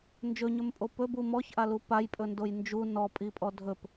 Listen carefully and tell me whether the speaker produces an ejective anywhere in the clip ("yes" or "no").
yes